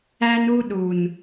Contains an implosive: yes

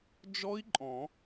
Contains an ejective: yes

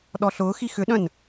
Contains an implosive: yes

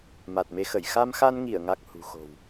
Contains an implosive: no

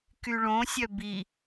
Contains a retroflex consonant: yes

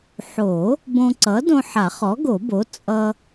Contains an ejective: yes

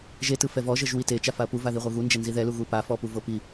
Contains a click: no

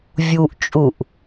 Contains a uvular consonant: no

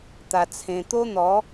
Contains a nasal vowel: yes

